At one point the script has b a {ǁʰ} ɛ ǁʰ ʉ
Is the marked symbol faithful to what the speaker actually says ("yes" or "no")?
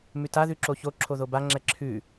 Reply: no